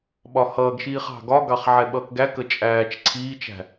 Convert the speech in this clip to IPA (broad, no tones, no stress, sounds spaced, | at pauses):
ɓ ɒ h ʌː ɡ ʃ iː χ ɑ̤ ɡ ɒ ɡ ɑ χ ʕ ɛ ɓ ʌː k ɡ æ k ə t͡ʃʼ æː t͡ʃ ǀʰ iː t͡ʃ æ̤